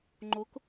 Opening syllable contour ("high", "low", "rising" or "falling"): rising